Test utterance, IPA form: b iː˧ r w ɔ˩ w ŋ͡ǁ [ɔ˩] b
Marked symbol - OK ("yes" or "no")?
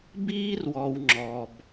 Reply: yes